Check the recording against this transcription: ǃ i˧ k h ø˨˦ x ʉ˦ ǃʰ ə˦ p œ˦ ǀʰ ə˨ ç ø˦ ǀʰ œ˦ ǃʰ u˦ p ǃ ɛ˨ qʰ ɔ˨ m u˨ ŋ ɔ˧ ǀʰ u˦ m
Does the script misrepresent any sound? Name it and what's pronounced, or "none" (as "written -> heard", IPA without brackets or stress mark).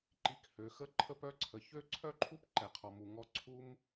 ʉ˦ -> ə˦